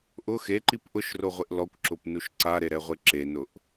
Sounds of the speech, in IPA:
ʔ ʊ x e ǃ i p ʔ ʊ ʃ r o ʁʷ ɪ ʔ l ɔ kʷ ǁ ʊ p n u ʃ ǀ a ɾ e ɾ ɛ ʁʷ e ǁ e n ʊ ʔ

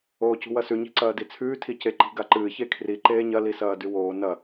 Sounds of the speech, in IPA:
oː c ṳ w ɐ s ʉ ɲ i̤ ǀ ɐː d i t͡sʰ ʉː tʰ i c e ǃ i̤ ɡ a ǃ ɨː ç e kʰ r i ǃ eː ɲ ɐ l i s ɐː d ʉ w oː n ɐ

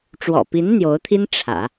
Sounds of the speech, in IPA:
ʈ͡ʂ w ɔ̰˨˩ p i˧˥ n n̪ j o˧˥ ʊ̯ t̪ʰ i˥ n ʈ͡ʂʰ ä̰˨˩˦

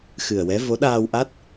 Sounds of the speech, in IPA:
x ɨ˨˩ ə̯ w ɛ˧˥ v o˧˥ ɗ aː˧ w ʔ a˦˥ t̚

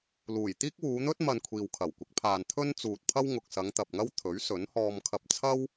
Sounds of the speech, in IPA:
l uː˨˩ j t̪ iː˥ k̚ w uː˨˧ n̪ ɵ˥ t̚ m ɐ˧ n kʷʰ iː˨ w kʰ ɐ˨˩ w kʷ ɪ˨˥ k̚ pʰ aː˨ n t̪ʰ ɵ˥ n t͡s uː˨ t̚ pʰ ɐ˥ w ŋ ʊ˨ k̚ s ɐ˨˧ ŋ t̪ ɐ˨ p̚ ŋ ɐ˥ w t̪ʰ ɵ˨˥ ɥ s ɵ˨˥ n h ɔː˧ m kʰ ɐ˧ p̚ t͡sʰ ɐ˥ w

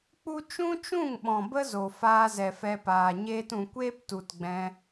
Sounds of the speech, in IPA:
k͡p u˦ t͡ʃ ũ˦ t͡ʃ ũ˦˨ ŋ ɓ ɔ̃˨ b ə˦ z o˨ f aː˧ z ɛ˨ f ɛ˧ p aː˨ ɲ eː˧ t ũ˨ kʷ eː˦ p t u˨ t ɡ͡b ɛ̃˧

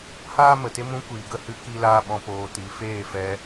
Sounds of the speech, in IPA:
h aː˦ m ə˨ t e˦ m ũ˧ kʷ iː˨ ɡ ə˦˨ h ɨ˦ k i˦ l aː˦ ɓ ɔ̃˧ p oː˧ t i˨˦ f eː˦˨ f ɛ˧

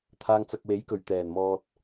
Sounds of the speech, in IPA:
t̪ʰ aː˧ ŋ t͡s ɐ˨ k̚ w e˨˥ j k ɵ˨˩ ɥ t̪ ɛː˨˩ n m ɔː˨ t̚

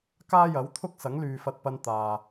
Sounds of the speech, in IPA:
k aː˥ j ɐ˨˥ w t̪ʰ ʊ˥ k̚ s ɐ˨˥ ŋ l yː˨ f ɐ˧ t̚ p ɐ˧ n t̪ aː˨

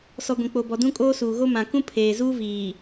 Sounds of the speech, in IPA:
s ɔ˨ ɡʷ ĩ˨ k͡p o˨ b ɔ˨ d ũ˦ kʼ oː˦ s uː˨ ɣ o˦ m ã˨ k ũ˦ pʰ eː˨ z uː˦ v iː˨

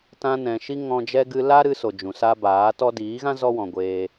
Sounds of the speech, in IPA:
t ã˧ n ɛ̃˨ ʃ i˦ ŋ ɔ̃˧ d͡ʒ ɛ˦ ɡ ɨ˧ l a˦ ɾ ɨ˦ s o˨ d͡ʒ ũ˨ s a˦ b aː˨˦ t ɔ˦ d iː˨˦ ɣ ã˦ z ɔ˦ w ɔ̃˨ ɡʷ eː˧

